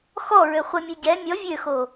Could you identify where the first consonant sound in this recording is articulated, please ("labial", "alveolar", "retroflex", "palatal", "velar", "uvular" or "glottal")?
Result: velar